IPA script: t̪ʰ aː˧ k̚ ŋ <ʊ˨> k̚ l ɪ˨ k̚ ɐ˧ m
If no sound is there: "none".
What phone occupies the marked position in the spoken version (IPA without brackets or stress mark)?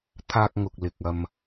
ʊ˨